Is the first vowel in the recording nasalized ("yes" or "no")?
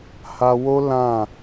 no